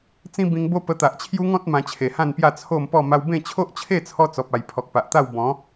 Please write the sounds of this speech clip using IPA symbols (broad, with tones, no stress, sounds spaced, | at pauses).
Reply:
t͡s ĩ˦ b ĩ˧ ŋ b o˦ p ə˧ t̪ a˨ ʔ t͡ɕʰ j u˦ ŋ ɔ̃˦ t̚ m ã˧ t͡ɕʰ e˨˩ h ã˥˧ n p j a˥˧ t͡sʰ o˥˧ m p ɔ˥˧ m a˧ w b ẽ˥˧ t͡ɕʰ o˦ ʔ t͡ɕʰ e˥˧ t͡sʰ ɔ˧ t͡s ɔ˨ p̚ a˨˩ j pʰ ɔ˨ k̚ p a˨ ʔ t̪ a˥˧ w b ɔ̃˨˦